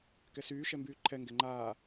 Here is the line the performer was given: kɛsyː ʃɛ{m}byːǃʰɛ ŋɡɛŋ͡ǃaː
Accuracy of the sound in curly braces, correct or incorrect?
correct